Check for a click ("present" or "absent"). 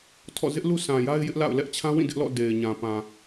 absent